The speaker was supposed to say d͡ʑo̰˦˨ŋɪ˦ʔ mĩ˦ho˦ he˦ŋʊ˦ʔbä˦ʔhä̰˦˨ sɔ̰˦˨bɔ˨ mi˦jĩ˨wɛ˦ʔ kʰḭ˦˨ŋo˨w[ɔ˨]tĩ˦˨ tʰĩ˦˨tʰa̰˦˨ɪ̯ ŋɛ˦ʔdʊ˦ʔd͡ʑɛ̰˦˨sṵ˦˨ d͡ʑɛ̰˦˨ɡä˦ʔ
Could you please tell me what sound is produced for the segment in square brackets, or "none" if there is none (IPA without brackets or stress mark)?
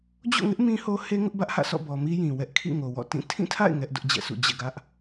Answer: ɔ̰˦˨